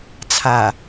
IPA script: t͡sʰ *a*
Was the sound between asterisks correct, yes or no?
yes